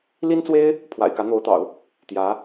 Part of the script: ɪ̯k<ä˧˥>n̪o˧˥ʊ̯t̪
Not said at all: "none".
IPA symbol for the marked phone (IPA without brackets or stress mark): ä˧˥